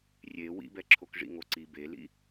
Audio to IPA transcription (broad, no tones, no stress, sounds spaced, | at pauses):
rʲ e w ḭ b ɛ ǁʰ o k ʐ ḭ ŋ o ǀ i b e l ḭ